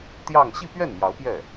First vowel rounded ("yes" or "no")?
no